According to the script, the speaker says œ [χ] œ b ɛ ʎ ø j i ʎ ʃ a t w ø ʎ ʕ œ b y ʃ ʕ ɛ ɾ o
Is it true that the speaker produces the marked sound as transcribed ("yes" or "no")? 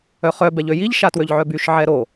yes